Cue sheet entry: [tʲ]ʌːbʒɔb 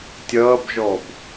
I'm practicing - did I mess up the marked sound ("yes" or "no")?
no